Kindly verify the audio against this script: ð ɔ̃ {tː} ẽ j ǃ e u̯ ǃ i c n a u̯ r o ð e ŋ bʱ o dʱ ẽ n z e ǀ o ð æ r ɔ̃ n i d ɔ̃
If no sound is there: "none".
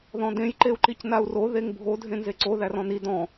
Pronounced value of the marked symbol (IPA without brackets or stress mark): d